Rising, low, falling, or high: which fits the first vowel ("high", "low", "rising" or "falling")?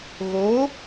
rising